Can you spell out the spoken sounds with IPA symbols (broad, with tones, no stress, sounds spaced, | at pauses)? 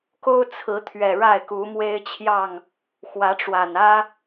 k o˦ ʊ̯ t͡sʰ ɹ̩˨˦ t̪ʰ ɥ ɛ˨˩ ɻ a˥˨ ɪ̯ k u˨˦ m w e˦ ɪ̯ t͡ɕʰ j ɑ˥˨ ŋ | x w ä˨˦ ʈ͡ʂ w a˨˩ n ä˦